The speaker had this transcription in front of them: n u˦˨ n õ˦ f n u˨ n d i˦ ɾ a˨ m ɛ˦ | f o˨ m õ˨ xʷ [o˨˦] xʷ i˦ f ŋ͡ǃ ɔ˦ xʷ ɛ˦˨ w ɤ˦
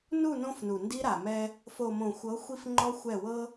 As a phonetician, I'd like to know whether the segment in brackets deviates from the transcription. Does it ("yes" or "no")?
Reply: yes